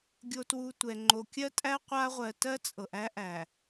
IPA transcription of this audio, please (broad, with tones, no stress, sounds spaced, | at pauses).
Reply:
ɡʲ o˨ t w u˨ tʷ ɛ˨ ŋ͡ǃ o˨ kʲ ɜ˦ tʼ æ˦ qʷ a˦ ʁʷ ɜ˨ t ɜ˦ t͡sʼ ɤ˨ ʔ æ˦ ʔ æ˨